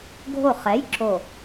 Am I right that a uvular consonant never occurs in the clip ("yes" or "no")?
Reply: no